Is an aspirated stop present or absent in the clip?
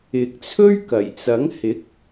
present